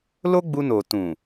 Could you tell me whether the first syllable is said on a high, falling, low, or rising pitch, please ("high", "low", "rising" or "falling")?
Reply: high